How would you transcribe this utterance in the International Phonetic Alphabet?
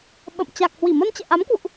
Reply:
ɓ ə̰˧˨ m t͡ɕ a˨˩ k̚ h w i˧˩ m ə˧ n t͡ɕ ɛ̰˧˨ ʔ a˨˦ m k w ṵ˧˨ ʔ

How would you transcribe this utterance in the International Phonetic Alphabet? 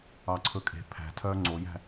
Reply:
ɑ ǀʰ ɵ kʼ e̤ pʰ æ̤ tʰ œː ŋ͡ǀ o j æ̤

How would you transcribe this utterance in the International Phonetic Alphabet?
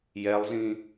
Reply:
j ɛ lˠ z ĩ

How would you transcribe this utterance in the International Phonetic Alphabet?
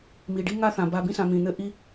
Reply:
m i˩ ɖ i˥ ŋ a˥ θ ã˩ b a˨ b ĩ˦ s ã˨ m ĩ˩ n̪ ɘ˦ ʔ i˦

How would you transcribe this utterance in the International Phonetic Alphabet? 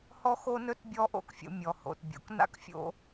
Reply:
h ɔ˥ x o˥ n ɵ˥ t bʲ ɔ˥ ʔ o̰˥ k fʲ o̰˧ mʲ ɔ˩ h o̰˩ t bʲ o̰˩ k n a̰˥ k fʲ o̰˧

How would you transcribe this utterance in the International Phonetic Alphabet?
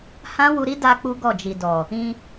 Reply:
h ã˦ w u˧ ɾ i˦ d a˧ k͡p u˦ ɡ ɔ˦˨ d͡ʒ i˨ d ɔ˨ | ĩ˧

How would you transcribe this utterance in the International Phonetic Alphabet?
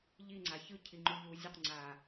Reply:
ʎ i ŋ͡ǀ a ç ɯ cʰ i ŋ͡ǃ u ʎ u zʲ o q ŋ͡ǀ a

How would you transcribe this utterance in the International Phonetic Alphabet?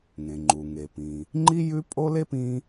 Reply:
ŋ ẽ˩ ŋ͡ǃ u˩ ŋ e˩ p ĩ˩ | ŋ͡ǃ i˥ j ʉ˥ pʼ o˥ l e˥ p ĩ˥

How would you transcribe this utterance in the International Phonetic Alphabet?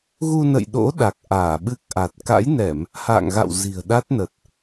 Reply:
ɣ u˧ n ə̰˧˨ j ɗ o̰˧˥ ɗ a˨˩ k̚ ʔ aː˧˩ ɓ ɨ˦˥ k̚ ʔ a˨˩ t̚ k a̰˧˥ j n ɛ˧˩˨ m | h a̰ː˧˨ ŋ ɣ a̰˧˨ w z i̤˨˩ ə̯ ɗ a˦˥ t̚ n ə˨˩ t̚

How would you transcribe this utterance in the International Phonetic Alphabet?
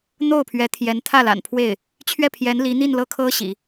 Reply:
n̪ o˥˩ ʊ̯ pʰ ɥ ɛ˧˥ t̪ʰ j ɛ˧˥ n t̪ʰ ä˥˩ l a̰˨˩ n pʰ w e˥˩ ɪ̯ | t͡ɕʰ ɥ ɛ˥˩ pʰ j ɛ˧˥ n l i˧˥ n̪ i˥˧ n l ɤ˥˩ kʰ ɤ˥ ɕ ḭ˨˩˦

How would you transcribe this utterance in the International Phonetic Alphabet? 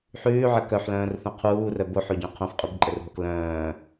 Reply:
ħ ʉː ʕ ɘ k œ ħ l œ̃ː r θ õ qʰ uː r œ b o ħ o ɟ œ̃ qʰ õ f qʼ ʉ b ǃʼ ɘ r ɦ o k l œ̃ː

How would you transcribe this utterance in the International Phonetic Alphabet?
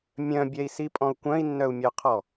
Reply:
mʲ œ̃ bʲ ɛ i̯ s i pʼ ɔ̃ u̯ kʷ œ̃ i̯ nː œ u̯ mʲ œ qʰ ɔ

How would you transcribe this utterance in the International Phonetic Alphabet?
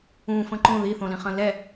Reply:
ũ f ə̃ ǃ õ ð i θ õ l ĩ χ ə̃ l ɛ

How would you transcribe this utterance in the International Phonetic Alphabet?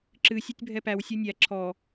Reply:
ǁ ɨ sʲ o tʲ bʱ ɛ p æ w sʲ o nʲ æ ǁʰ ɔ

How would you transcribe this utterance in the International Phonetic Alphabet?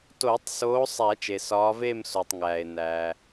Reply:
t oː˨˩˦ tˤ s oː˨˦ sˤ æ˨˩˦ t͡ʃ e˩ s ɒː˨˦ v eː˥˧ m s o˩ tˤ ŋ æː˩ e̯ n æː˩

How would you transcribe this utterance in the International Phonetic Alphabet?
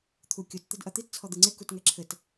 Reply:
t̪ʰ u kʲ o t t̪ ɘ d ʔ ɐ t̪ i t t͡sʰ ɔ d̪ ɨ ŋ͡ǀ e k u t ŋ ɛ ǁʰ ɘ t

